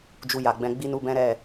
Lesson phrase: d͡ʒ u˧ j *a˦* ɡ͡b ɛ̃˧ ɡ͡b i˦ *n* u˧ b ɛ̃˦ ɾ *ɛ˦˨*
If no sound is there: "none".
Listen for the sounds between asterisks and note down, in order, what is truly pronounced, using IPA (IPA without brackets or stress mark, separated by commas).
a˨, n, ɛ˦˨